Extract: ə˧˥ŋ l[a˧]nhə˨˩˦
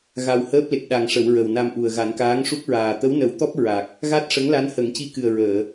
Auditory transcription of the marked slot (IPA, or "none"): a˧˥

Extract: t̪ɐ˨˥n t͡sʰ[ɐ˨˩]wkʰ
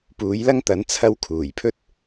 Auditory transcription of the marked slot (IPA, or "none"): ɐ˥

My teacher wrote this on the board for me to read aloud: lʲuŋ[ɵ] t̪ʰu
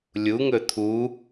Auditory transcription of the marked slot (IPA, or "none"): ɵ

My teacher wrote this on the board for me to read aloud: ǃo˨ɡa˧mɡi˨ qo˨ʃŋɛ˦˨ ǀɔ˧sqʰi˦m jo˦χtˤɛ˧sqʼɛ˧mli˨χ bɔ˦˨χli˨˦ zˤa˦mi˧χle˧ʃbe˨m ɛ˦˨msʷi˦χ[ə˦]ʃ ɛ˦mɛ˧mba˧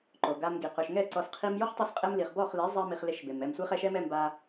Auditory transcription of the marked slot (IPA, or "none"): ɛ˦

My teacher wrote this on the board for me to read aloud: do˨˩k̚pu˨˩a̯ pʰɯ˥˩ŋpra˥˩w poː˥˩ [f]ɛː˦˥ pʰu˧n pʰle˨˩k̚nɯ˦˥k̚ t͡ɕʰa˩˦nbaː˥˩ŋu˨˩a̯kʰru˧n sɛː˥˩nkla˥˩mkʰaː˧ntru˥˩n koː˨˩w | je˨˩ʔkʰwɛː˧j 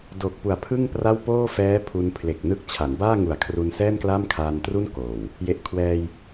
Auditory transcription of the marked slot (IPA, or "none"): f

